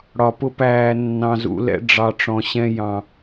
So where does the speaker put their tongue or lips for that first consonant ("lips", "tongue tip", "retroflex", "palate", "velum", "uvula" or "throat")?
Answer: retroflex